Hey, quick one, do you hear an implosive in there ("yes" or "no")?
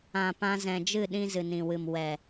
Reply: yes